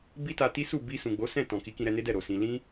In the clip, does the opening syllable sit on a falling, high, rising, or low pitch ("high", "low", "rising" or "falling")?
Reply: high